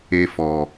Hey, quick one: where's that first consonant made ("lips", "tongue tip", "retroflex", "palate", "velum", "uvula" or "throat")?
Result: lips